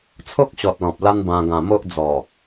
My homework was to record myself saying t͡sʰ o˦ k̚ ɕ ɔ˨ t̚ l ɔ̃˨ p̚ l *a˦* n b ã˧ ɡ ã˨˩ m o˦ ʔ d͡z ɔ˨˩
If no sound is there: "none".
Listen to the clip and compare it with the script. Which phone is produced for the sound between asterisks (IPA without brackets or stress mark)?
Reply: a˦